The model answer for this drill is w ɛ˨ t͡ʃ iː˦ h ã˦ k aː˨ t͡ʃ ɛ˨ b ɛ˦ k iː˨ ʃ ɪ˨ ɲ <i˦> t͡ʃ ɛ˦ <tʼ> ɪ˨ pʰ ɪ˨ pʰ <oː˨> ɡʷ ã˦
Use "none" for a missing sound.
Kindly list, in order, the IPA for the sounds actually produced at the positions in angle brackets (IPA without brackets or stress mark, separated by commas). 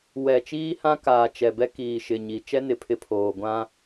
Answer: i˨, n, oː˨